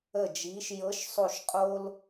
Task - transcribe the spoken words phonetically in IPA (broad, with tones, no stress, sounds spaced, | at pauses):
ə˦˨ d͡ʒ iː˧˥ ʃ j ɤ˧˥ ʃ sˤ o˦˨ ʃ qʼ o˥ l